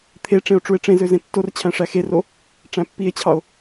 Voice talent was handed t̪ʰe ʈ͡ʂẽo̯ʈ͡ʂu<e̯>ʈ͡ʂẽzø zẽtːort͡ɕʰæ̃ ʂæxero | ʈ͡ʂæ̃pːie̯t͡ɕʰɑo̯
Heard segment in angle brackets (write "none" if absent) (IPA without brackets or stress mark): e̯